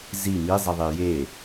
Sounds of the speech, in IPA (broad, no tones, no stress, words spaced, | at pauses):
zi mi zˤiðˤije